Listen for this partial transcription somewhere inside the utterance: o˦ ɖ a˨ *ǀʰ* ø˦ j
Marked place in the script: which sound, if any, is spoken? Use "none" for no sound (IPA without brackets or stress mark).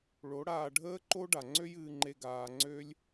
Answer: ŋ͡ǀ